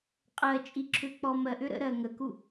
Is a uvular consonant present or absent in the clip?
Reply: present